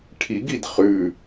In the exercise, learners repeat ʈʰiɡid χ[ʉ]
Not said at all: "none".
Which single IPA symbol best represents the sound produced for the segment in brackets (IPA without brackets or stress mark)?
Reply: ʉ